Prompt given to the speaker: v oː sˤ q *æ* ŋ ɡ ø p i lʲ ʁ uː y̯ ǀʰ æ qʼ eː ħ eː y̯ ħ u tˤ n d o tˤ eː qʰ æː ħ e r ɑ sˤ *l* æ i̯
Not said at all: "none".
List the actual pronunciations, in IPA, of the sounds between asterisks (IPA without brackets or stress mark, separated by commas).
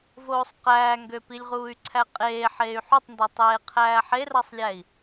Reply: æː, lʲ